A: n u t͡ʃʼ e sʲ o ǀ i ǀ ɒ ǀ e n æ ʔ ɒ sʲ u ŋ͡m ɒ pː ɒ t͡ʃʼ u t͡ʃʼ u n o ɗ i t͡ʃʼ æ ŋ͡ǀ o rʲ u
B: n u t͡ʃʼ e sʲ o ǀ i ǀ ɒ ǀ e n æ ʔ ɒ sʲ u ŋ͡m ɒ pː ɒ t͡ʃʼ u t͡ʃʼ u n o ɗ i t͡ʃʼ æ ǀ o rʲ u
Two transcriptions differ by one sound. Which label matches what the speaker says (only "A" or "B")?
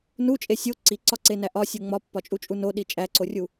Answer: B